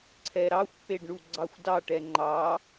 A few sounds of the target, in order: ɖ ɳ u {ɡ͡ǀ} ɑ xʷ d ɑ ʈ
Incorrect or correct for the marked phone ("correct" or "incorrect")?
correct